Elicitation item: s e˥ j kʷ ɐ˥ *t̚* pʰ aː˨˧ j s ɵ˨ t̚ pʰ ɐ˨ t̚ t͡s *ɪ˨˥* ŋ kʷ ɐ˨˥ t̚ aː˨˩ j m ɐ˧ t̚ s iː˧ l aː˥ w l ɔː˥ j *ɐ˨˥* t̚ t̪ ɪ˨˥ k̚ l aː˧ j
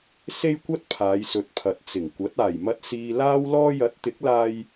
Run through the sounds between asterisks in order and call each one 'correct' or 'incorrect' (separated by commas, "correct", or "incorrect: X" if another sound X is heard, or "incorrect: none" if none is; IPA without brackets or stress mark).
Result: correct, incorrect: ɪ˨˩, correct